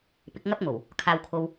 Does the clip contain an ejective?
no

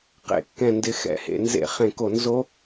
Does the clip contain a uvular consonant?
yes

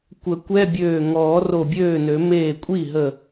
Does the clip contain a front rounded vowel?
yes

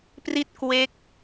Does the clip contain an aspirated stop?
no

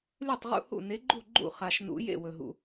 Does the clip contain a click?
yes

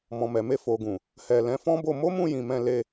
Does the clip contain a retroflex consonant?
no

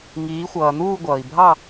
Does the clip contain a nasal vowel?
no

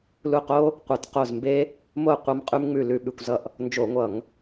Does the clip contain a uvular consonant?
yes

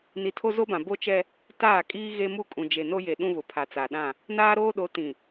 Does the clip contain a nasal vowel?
yes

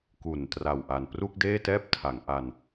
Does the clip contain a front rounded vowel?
no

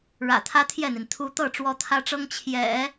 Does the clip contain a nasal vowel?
no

